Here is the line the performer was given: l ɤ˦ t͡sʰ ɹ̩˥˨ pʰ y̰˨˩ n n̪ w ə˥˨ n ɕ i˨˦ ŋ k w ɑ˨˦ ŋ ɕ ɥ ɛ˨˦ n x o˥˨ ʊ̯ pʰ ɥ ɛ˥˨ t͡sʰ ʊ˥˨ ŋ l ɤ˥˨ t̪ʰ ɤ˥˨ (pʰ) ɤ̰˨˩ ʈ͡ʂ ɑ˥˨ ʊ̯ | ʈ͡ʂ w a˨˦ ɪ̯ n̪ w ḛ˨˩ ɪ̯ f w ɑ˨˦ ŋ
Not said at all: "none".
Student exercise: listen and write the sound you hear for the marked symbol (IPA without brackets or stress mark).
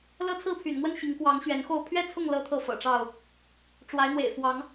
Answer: f